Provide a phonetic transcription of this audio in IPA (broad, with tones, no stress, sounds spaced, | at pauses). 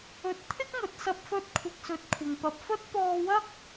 ɵ˨˥ t̚ t̪ʰ ɪ˥ k̚ ŋ ɵ˨ t̚ s ɐ˧ p̚ f ɵ˧ t̚ kʷʰ ɪ˧ k̚ s ɵ˧ t̚ kʷʰ ɪ˨ ŋ p ɐ˨ p̚ f ɵ˥ t̚ p ɔː˧ w ɐ˥ k̚